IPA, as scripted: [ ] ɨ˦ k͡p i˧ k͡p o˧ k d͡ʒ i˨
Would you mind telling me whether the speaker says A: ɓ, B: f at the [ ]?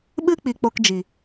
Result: A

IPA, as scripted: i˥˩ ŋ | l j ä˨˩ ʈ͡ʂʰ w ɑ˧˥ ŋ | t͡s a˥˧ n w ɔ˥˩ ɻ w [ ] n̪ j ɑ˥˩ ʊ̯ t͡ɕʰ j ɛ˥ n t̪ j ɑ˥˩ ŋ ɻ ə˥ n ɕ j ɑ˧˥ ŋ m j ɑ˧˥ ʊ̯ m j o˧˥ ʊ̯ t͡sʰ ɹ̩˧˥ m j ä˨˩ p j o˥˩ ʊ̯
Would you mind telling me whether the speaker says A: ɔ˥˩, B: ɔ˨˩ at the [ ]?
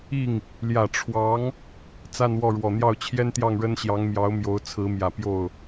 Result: B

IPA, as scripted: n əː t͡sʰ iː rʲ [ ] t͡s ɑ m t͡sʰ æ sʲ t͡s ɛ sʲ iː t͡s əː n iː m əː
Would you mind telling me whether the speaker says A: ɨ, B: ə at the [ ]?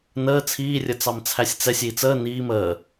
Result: B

